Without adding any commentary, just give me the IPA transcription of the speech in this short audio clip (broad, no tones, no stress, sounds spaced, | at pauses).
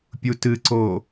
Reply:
pʲ u t ɨ ǀ o